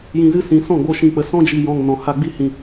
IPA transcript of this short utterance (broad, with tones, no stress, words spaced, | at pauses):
jĩ˨zɨ˧ sĩ˨sɔ̃˦˨ɡ͡bo˧ ʃĩ˨k͡pə˨ sɔ̃˦d͡ʒi˨jɔ̃˨ŋ nɔ̃˨ha˧ɡ͡bi˦hĩ˧